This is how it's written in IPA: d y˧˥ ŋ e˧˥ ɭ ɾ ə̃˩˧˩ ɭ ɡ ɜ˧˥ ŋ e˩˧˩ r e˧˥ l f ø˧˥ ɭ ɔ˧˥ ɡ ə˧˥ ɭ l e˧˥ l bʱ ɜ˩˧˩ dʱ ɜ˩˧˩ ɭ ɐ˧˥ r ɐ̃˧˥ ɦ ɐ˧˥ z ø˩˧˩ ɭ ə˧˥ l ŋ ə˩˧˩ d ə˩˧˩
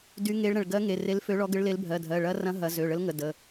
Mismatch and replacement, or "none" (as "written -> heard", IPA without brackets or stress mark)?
none